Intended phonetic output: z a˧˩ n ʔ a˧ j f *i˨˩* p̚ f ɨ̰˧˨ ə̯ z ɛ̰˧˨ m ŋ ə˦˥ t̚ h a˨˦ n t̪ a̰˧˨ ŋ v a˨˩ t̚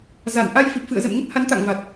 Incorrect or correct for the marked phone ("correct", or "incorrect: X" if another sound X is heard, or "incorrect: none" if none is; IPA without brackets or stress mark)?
correct